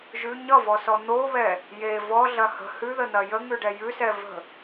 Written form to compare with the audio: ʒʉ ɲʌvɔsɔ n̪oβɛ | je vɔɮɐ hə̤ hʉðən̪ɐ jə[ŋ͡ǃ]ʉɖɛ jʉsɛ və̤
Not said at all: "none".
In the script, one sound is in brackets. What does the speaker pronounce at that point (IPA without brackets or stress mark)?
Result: ŋ